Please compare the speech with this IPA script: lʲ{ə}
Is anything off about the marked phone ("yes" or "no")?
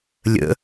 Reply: yes